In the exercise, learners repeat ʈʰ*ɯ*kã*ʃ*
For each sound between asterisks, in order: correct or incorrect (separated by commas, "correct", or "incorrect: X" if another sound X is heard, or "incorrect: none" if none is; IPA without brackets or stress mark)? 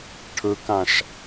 correct, correct